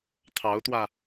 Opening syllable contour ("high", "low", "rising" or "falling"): rising